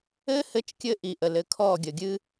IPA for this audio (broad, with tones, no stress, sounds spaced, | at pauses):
ɘ˦ h ɘ˧ t͡ʃ kʲ ɘ˧ ʔ i˨ ʔ ə˨ l ɘ˧ kʰ ɔ˦˨ ɡʲ ə˨ ɡʲ ɨ˧